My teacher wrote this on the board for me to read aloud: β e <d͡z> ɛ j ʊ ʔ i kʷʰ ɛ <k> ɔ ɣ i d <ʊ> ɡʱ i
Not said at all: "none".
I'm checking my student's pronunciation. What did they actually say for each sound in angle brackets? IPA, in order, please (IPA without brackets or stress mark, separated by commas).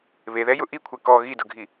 ð, k, ʊ